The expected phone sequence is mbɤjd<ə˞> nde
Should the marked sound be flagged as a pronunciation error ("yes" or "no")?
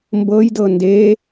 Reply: yes